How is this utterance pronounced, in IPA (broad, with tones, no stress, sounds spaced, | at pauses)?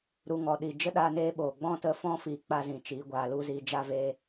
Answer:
ɾ u˧ ŋ ɔ˨ ɗ i˨ d͡ʒ ə˦ ɗ a˧ n eː˧ ɓ oː˨ ɡ͡b ɔ̃˦ t ə˧ f ɔ̃˦ f i˨ k͡p a˦ z ĩ˨ t͡ʃ iː˨˦ ɡʷ aː˧ l u˦ z iː˧ d͡ʒ a˦ v eː˦